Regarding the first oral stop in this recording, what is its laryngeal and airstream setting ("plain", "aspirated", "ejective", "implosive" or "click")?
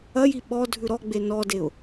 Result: implosive